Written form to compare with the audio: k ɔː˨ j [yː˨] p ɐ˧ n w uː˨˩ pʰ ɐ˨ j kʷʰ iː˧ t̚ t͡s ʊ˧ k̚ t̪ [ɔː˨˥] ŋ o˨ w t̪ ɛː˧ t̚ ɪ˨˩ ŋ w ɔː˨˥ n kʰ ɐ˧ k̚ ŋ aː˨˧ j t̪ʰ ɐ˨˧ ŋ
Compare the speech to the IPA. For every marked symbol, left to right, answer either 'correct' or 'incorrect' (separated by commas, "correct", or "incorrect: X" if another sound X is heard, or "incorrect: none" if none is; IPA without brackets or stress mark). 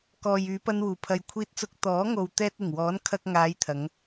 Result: incorrect: yː˨˧, correct